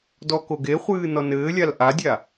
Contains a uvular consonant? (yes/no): yes